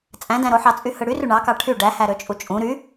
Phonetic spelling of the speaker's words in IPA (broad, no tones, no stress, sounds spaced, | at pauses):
t͡sʼ æ̃ d æ̃ ɾ o ħ ɑ t͡sʼ y h ɯ ɽ y r y ɳ ɑ k ɑ ʈʰ y ɖ æ h æ ɾ ø t͡ʃʼ u t͡ʃʼ ũ ɾ y